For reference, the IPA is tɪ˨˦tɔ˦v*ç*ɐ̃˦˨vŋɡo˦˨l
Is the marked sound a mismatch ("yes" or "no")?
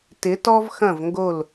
yes